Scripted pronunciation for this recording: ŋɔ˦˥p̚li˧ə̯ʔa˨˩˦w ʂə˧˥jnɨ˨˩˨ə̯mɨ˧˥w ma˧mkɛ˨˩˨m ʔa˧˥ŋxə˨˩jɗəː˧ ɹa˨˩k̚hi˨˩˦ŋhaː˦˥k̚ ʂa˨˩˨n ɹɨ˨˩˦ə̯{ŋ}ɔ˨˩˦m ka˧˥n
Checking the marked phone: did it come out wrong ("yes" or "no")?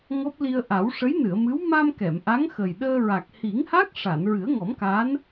no